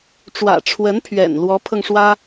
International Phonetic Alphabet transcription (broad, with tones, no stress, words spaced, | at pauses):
ʈ͡ʂwä̰˨˩ʈ͡ʂʰwə˧˥npʰɥɛ̰˨˩n lwɔ˧˥pʰɤ˧ŋʂwä˥